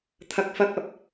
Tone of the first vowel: high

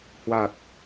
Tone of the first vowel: low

